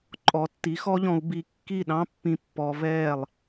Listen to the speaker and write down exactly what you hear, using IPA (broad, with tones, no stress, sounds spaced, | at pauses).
ǃʼ ɔ˩˥ tː i˩˥ x ɔ˥ ʎ ɔ̃˧ u̯ b i˧ kː i˥˩ ɗ ɑ̃˥ pː ĩ˧ pː ɔ˧ v ɛː˥˩ lˠ